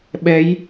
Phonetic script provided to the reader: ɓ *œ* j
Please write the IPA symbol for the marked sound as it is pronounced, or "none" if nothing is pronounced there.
ɛ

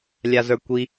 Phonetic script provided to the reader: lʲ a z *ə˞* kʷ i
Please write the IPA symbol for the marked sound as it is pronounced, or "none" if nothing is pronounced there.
ə˞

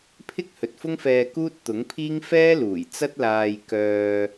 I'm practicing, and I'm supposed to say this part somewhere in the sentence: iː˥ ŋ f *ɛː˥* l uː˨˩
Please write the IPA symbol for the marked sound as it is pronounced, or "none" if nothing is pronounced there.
ɛː˥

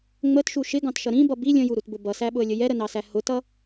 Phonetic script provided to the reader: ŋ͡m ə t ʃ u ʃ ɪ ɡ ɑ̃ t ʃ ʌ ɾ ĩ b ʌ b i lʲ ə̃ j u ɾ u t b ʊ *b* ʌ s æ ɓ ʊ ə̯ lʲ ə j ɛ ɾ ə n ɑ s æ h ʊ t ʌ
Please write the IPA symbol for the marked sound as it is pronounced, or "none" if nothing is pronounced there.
b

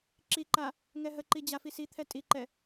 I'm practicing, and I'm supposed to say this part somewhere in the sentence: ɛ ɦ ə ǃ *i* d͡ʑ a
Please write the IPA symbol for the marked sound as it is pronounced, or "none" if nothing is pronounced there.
i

